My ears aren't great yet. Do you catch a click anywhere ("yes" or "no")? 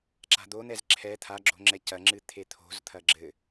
yes